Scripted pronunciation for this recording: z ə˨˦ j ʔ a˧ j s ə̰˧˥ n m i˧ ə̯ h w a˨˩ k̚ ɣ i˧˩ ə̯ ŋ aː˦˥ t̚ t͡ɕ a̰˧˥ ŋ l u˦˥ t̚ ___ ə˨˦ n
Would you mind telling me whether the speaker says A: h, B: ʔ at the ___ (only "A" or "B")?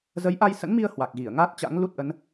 B